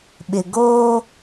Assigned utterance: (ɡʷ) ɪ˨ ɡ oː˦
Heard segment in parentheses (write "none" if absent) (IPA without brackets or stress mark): ɓ